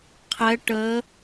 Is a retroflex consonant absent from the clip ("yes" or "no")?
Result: no